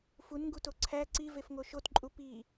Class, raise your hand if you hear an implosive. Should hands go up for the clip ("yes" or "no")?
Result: no